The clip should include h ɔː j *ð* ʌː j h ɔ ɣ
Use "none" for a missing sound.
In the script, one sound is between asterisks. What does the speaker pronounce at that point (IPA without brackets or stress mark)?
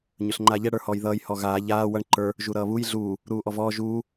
ð